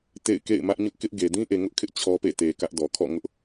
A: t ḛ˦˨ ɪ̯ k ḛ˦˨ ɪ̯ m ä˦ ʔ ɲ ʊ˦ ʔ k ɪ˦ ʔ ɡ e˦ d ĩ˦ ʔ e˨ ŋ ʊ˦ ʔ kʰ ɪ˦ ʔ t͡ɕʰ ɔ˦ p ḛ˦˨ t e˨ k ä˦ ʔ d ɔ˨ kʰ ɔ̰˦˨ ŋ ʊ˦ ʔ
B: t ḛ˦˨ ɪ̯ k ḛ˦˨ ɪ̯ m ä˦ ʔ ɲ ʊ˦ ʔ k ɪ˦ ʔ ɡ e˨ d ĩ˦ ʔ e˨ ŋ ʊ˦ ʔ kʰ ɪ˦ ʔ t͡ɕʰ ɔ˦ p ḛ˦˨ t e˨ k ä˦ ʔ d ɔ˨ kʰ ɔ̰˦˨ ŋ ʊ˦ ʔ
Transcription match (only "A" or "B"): B